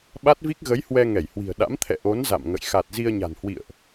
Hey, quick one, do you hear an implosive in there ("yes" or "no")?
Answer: yes